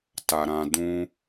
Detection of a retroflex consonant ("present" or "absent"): absent